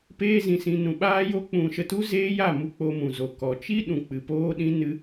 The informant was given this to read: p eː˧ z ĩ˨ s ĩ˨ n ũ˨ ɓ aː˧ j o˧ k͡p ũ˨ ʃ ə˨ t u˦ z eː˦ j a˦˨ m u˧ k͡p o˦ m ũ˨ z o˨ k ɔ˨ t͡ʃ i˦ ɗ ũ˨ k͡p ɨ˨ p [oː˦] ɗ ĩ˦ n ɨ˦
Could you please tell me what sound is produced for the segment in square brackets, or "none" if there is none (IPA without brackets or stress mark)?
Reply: oː˦